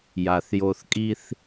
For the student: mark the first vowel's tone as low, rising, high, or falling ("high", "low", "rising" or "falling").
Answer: low